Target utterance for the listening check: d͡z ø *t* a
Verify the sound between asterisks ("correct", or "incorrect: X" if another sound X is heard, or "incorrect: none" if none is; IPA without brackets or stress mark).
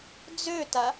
correct